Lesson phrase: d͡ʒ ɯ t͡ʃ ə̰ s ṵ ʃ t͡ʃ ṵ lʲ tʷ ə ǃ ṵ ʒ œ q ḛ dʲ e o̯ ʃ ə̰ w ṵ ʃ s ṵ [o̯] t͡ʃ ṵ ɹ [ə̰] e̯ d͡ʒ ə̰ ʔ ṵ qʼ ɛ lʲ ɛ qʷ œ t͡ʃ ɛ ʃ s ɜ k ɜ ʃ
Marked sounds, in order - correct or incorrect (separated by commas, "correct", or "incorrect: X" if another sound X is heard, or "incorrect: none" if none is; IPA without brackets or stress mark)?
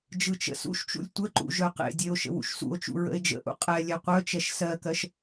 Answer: correct, correct